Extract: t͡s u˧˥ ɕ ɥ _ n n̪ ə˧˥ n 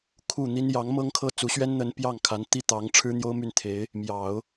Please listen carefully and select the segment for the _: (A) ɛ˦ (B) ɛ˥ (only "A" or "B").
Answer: B